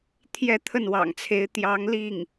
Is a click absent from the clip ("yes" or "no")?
yes